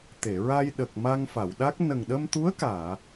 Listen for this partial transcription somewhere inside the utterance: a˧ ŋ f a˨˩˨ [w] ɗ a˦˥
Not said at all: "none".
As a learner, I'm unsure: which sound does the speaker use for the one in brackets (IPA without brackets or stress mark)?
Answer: w